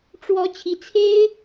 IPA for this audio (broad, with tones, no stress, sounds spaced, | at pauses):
ʈ͡ʂ w ɔ˧˥ t͡ɕʰ i˧˥ t͡sʰ e˥ ɪ̯